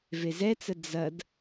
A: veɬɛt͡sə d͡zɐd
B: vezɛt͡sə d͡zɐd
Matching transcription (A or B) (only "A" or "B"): B